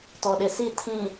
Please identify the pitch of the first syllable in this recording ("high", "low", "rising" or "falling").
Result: low